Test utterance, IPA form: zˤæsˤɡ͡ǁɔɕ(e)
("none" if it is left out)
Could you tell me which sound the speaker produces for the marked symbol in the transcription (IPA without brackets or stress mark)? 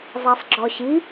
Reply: i